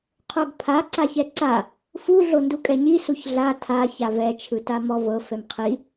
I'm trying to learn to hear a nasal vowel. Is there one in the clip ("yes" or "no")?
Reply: no